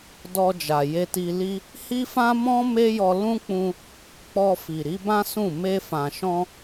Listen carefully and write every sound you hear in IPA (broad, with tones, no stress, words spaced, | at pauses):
dɔ˧d͡ʒa˨ je˧ti˧li˦ | hi˦fã˦ mɔ̃˦ me˦jɔ˧ lũ˦k͡pũ˧ | k͡pɔ˧ fi˨ɾi˨˦bã˦ sũ˦˨ me˧fã˨ʃɔ̃˧